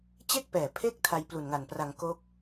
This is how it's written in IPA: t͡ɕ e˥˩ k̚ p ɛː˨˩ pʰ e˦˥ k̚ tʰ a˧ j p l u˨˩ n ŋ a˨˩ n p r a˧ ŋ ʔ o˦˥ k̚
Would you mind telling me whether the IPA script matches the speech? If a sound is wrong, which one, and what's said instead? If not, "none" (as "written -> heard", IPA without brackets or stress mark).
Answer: ʔ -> k